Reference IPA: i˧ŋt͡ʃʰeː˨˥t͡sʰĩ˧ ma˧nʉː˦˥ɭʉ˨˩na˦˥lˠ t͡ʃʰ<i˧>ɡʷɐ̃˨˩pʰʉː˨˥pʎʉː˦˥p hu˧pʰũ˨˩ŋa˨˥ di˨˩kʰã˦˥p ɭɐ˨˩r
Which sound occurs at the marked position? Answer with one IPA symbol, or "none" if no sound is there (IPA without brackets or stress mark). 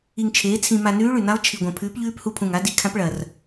i˨˩